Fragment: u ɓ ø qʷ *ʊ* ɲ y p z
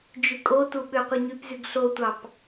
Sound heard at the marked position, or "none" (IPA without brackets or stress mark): ɯ